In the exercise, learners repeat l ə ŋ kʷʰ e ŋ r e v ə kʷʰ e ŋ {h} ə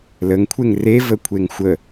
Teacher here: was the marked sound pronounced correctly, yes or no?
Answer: no